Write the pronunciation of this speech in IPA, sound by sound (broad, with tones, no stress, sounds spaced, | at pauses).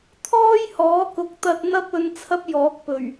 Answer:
t̪ʰ ɔː˥ j h ɔː˨˥ k ʊ˨ k̚ t̪ ɐ˧ t̚ n̪ ɐ˥ p̚ ɵ˧ n t͡sʰ ɐ˥ p̚ j ɔː˨˥ k̚ p ɵ˨˩ ɥ